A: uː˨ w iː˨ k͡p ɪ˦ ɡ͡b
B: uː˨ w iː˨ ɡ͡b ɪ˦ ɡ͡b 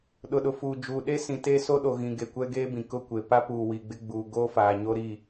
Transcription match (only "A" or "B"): B